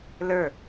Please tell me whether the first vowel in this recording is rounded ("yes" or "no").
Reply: no